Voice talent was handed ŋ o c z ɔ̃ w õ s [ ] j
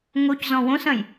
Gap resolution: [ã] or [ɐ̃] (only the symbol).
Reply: ɐ̃